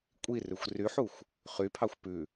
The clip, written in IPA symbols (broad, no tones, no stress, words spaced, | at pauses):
kʷʼirʉxʷ ryħuxʷ | χypʰɑxʷ pʉ